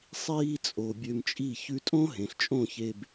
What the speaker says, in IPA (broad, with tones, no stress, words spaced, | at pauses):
sˤiː˧t͡sʼo˨ bʲø˧mt͡ʃʼi˦˨ çʉ˧tʼõ˦ɦẽ˨ɬ t͡ʃʼõ˦˨çe˧b